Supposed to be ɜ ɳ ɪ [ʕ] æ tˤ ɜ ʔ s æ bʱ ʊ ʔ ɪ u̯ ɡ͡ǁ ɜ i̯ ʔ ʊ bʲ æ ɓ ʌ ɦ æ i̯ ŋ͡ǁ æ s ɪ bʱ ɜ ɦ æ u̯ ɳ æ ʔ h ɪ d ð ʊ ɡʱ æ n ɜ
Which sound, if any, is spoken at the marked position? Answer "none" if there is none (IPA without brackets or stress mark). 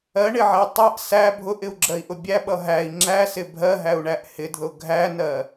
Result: ʕ